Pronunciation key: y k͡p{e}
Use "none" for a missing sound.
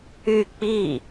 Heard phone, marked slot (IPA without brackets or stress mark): i